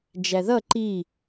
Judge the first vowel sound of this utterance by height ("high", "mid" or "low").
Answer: low